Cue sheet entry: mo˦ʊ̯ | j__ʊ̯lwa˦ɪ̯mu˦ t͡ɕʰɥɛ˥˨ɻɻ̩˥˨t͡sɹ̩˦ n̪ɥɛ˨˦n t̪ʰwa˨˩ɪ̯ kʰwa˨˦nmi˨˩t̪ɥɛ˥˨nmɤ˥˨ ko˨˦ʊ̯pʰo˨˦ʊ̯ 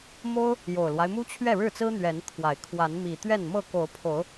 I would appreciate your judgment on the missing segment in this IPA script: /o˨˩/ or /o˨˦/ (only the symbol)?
o˨˩